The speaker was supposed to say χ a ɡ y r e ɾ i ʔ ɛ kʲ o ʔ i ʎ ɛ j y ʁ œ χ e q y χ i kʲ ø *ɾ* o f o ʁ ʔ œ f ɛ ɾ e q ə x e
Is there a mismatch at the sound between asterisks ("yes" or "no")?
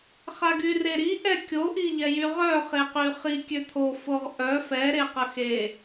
yes